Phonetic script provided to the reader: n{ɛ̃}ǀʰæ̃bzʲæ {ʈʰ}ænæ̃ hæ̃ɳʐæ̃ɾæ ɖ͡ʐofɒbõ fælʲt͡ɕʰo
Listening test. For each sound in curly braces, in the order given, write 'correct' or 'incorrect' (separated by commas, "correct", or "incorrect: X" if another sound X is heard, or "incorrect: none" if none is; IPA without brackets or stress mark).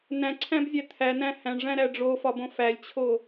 incorrect: æ̃, incorrect: t̪ʰ